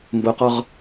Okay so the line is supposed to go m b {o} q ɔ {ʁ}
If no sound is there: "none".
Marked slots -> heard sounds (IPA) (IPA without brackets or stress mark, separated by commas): o, ʁ